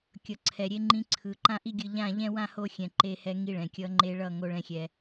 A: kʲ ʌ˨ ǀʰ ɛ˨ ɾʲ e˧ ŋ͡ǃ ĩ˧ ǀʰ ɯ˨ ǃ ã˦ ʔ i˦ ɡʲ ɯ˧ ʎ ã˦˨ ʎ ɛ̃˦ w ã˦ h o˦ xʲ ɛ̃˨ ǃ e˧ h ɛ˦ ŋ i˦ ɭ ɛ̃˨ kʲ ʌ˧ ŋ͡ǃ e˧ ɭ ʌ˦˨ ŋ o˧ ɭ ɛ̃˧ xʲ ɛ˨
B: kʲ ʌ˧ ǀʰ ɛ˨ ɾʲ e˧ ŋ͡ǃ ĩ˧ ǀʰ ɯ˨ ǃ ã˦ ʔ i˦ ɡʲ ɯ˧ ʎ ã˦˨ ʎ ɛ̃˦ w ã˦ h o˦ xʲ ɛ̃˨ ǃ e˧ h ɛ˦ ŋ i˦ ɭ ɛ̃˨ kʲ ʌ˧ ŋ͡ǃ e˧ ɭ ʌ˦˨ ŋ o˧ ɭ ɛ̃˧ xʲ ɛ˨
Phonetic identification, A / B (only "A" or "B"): A